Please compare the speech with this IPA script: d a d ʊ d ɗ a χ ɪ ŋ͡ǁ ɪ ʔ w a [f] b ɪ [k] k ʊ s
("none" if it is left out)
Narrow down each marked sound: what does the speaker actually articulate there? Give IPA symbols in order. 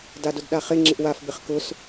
f, χ

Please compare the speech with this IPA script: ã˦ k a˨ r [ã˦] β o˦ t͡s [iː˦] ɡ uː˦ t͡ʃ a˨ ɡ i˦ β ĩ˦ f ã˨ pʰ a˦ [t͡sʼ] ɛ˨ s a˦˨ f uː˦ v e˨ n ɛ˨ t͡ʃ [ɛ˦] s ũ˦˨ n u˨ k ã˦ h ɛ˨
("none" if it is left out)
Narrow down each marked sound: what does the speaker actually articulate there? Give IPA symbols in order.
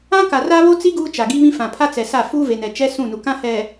a˦, i˦, t͡s, ɛ˦

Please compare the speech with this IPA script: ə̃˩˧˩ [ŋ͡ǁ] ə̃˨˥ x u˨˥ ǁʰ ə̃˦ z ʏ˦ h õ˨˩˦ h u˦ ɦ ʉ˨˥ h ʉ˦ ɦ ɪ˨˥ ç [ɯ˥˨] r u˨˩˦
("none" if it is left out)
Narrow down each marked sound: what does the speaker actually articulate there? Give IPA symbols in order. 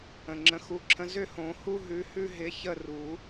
ŋ͡ǁ, ə˥˨

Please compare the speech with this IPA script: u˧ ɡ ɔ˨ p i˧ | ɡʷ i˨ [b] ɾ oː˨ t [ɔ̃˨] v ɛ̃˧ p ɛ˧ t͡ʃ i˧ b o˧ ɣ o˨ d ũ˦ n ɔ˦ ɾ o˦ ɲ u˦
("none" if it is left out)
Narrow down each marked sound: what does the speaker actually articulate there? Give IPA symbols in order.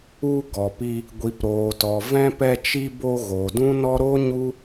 p, ɔ˨

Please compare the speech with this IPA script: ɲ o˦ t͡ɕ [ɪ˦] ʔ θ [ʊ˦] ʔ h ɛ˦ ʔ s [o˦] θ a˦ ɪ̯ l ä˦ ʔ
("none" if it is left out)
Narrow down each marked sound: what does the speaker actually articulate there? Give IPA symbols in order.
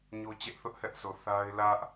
ɛ˦, ʊ˦, o˨

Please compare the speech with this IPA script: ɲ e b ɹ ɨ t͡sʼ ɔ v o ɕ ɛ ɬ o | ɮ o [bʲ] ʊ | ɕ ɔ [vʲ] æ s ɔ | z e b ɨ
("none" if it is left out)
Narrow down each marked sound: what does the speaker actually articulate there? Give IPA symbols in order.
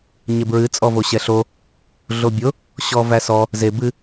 bʲ, v

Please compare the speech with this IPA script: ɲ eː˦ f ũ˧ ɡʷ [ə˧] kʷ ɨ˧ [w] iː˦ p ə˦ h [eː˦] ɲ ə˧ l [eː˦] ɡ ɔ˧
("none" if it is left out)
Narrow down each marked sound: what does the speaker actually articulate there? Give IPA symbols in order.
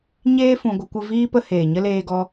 ə˧, v, eː˨, eː˧

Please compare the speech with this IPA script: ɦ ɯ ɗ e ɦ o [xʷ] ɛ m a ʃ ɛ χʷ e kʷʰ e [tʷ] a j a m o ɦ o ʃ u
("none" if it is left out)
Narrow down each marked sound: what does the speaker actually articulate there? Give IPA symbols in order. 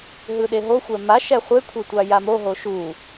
xʷ, tʷ

